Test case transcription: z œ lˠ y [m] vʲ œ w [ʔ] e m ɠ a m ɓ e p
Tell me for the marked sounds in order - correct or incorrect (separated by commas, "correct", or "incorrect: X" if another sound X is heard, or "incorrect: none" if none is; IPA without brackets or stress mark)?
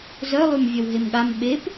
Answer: correct, incorrect: ɦ